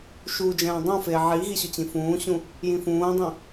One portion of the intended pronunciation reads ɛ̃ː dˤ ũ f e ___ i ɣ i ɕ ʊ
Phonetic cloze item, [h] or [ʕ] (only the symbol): ʕ